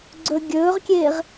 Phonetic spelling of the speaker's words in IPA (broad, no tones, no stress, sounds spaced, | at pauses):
ɡ͡ǀ ɵ ɡʲ ɵː ʁ kʲ eː ʁ